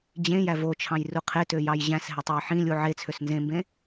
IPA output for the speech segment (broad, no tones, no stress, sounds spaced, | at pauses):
d͡ʑ ẽ j æ v o t͡ʃʰ ɑ̃ j r u qʰ e t ø j ɑ j ʑ æ̃ s ɦ e tˤ e j ħ ĩ lʲ u ʕ e t͡sʰ ø s n z ẽ m b ẽ